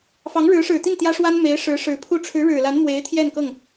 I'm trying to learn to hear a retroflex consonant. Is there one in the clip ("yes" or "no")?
yes